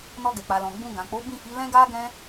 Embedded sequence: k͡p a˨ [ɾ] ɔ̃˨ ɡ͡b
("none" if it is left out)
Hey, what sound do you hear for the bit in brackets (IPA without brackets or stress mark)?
l